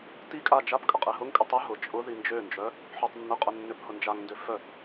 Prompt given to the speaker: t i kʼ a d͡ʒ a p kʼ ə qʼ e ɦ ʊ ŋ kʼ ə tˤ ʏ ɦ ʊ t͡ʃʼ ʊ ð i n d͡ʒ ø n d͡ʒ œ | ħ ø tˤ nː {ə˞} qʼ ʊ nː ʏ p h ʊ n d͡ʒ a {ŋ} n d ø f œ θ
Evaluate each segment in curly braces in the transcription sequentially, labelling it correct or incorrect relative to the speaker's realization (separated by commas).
incorrect, correct